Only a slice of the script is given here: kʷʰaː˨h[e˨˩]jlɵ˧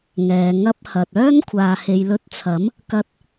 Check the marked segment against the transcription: incorrect: e˨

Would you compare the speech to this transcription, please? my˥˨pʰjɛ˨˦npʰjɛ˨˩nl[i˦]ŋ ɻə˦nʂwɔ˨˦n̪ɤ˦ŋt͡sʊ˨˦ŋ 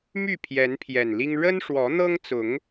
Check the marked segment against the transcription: correct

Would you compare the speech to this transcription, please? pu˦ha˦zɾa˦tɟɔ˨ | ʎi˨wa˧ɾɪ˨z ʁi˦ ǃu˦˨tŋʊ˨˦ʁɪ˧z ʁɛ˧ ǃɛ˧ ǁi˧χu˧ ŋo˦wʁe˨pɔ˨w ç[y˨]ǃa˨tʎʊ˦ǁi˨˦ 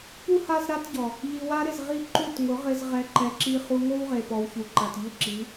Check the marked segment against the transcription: incorrect: u˨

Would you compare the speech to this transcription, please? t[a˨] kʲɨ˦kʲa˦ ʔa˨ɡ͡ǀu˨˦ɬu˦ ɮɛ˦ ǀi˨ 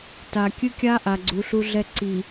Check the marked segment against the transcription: correct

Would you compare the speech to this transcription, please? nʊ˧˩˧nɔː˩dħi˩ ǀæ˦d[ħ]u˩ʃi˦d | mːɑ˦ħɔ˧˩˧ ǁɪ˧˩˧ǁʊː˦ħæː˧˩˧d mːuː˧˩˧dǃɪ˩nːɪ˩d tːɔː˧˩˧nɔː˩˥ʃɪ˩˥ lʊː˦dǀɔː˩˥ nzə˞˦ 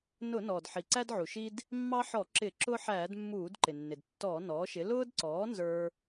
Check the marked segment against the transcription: incorrect: ʕ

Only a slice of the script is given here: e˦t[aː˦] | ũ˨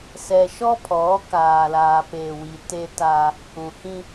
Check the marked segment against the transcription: correct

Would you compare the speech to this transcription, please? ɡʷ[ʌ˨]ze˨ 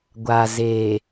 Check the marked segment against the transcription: incorrect: a˨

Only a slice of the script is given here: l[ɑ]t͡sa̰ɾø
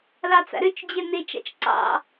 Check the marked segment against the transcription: correct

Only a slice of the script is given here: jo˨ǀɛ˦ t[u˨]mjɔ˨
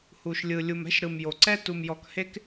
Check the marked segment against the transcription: correct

